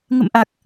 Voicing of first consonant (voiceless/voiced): voiced